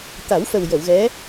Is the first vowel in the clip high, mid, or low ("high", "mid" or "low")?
low